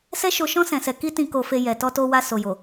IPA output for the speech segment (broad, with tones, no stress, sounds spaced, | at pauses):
s ɛ˦ ʃ o˧ ʃ ɔ̃˦ s ɛ̃˧ s ɛ˧ k i˦ t ĩ˧ k o˧ f e˧ j ɛ˨ t ɔ˧ t o˧ w a˧ s o˨ j o˨